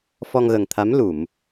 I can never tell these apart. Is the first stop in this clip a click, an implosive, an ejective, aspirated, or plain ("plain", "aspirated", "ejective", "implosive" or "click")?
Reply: aspirated